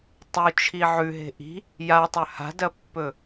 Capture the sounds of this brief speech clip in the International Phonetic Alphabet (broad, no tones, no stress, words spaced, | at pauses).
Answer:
tˤut͡ʃʰi ʕʉɦe̤ ʔi̤ | jatˤɵ ha̤dɐpːɵ